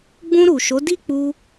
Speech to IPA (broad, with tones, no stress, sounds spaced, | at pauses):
ɡ͡b ũ˧ ɾ u˨ ʃ o˨˦ d i˦ k͡p u˧